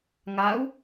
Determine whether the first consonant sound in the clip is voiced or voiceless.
voiced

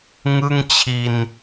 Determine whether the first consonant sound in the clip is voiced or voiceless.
voiced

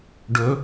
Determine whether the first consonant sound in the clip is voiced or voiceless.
voiced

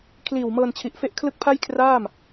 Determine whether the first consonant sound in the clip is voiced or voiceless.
voiceless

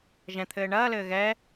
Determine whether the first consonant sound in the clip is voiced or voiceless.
voiced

